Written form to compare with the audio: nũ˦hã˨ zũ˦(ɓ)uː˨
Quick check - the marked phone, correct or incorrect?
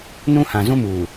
incorrect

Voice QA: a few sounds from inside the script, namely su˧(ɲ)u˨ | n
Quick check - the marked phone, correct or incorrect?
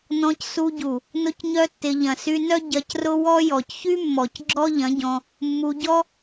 incorrect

